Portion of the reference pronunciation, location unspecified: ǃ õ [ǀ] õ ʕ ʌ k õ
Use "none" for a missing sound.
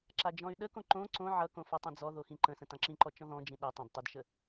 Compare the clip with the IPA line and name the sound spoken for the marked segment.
ǀ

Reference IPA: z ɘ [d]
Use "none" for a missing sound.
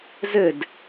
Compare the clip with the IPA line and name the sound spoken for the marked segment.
d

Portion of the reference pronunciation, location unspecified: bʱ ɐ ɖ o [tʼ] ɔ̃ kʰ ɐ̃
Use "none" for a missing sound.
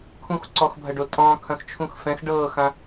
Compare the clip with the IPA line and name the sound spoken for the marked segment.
tʼ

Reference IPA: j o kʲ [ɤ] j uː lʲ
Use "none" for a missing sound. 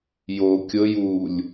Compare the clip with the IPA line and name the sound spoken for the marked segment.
ɤ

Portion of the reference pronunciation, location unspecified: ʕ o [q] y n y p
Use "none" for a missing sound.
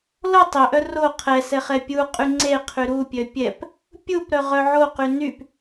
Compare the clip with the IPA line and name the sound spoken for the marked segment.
q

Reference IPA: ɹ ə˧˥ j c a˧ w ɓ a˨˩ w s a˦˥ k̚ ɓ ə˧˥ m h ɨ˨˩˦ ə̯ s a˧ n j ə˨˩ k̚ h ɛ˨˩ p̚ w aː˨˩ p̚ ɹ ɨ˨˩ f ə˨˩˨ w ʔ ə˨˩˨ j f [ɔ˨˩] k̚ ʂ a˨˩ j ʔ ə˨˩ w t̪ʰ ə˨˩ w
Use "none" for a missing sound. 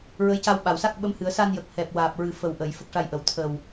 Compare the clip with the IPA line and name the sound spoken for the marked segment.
ə˨˩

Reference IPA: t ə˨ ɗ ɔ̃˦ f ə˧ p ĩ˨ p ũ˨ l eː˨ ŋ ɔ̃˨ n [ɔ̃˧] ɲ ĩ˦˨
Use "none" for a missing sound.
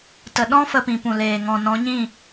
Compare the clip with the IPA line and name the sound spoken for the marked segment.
ɔ̃˨˦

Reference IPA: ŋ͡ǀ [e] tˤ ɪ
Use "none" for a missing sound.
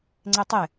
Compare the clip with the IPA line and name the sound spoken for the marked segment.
e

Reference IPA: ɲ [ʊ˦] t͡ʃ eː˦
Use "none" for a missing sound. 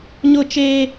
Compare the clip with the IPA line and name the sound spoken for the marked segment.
ʊ˦˨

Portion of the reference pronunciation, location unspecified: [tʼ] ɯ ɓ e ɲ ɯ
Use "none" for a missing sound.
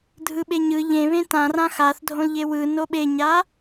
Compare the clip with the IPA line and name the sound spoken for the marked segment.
dʱ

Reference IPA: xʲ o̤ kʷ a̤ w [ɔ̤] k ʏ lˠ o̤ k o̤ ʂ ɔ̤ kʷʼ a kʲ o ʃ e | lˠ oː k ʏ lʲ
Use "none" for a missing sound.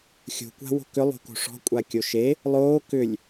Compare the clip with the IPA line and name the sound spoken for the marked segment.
o̤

